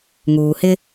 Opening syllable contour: low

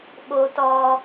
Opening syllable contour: high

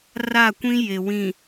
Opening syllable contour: falling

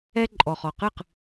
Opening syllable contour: high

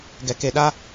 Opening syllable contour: low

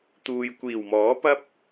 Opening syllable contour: low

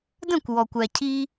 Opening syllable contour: falling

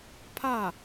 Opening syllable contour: falling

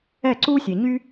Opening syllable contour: falling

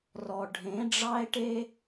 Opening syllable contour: low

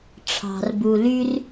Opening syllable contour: low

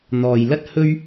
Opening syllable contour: low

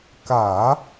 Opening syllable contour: low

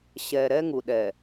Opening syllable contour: low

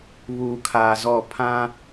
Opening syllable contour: low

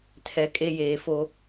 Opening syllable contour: low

